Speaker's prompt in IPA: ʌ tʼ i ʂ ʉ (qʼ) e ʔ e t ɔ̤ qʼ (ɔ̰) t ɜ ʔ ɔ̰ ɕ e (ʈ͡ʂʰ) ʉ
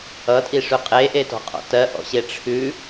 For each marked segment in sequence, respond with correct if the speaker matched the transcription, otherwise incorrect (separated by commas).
correct, correct, correct